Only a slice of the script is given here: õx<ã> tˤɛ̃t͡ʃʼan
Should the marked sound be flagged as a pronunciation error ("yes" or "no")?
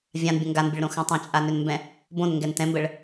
no